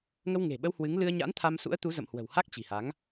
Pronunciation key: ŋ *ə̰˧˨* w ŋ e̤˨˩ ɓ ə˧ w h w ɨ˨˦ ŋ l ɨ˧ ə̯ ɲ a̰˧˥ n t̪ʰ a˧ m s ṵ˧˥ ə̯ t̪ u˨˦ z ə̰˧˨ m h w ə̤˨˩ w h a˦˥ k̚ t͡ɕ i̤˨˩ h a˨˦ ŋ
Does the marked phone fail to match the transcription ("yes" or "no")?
yes